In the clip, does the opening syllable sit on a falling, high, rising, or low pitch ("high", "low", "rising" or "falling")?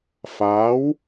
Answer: rising